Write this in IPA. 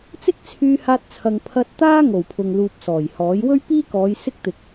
t͡sɪ˥k̚t͡sʰyː˧haː˧t̚ t͡sʰɐ˨ŋpʰɐ˧t̚t̪aː˥ ŋo˨˩wpʰʊ˨ŋluː˨p̚ sɔː˨˩jhɔː˨˥j wɵ˥ɥpiː˥kɔː˨˧j sɪ˥k̚t̪ɪ˨k̚

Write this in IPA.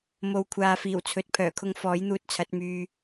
mo˨wkʷʰaː˨fiː˨˩w t͡sʰɵ˨˥t̚pʰœː˨˩kʰʊ˧ŋ fɔː˨˥jn̪uː˧t̚t͡sʰɐ˨˥t̚ myː˧

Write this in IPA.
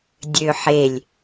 dʲøħelʲ

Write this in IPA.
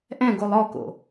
ʔɛ̃ɡolˠ ɔko̰

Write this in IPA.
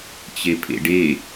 t͡ɕepʰḛɖe

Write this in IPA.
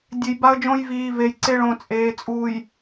dʲe˨jba˦ə̯d͡ʒõ˦j viː˨ve˨jǀe˦ɭõ˨ t͡sʼeː˨t͡sʼuː˨j

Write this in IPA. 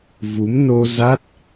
vu˨˦m no˧ za˦˥t̚

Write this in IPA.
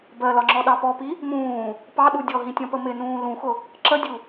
bɜlɒŋ͡ǁɔɗɑ pɔpi | mũː | pɑɗu dʲɔɦĩtʲɔ̃pə mɪnũː lũxʊ | ǁədʲu

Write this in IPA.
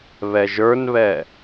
βɛʒə˞nβɛ

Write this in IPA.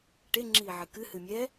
ʈe ŋ͡ǁiːʕɨkɨ hɨmʲɛ

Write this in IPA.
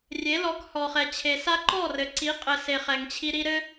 rʲe˨˦lɔ˨˦khɔ˨χɛ˨ t͡ɕʰe˨sa˦ ǃɔ˦˨rɘ˨ǀi˨˦ qʼɘ˨se˨ χɛ˨ŋt͡ɕʰi˧ɾi˦ ɾɘ˦

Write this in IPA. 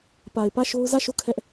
pa˨ɪ̯ pä˦˨ʃo˦ʊ̯ zä˦˨ʃo˦˨ kʰɛ˦ʔ

